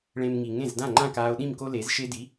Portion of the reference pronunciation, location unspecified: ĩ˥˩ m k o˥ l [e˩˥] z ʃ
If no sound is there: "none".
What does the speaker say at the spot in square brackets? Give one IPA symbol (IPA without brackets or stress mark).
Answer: e˩˥